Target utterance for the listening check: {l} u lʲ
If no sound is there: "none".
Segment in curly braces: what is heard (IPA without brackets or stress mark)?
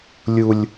lʲ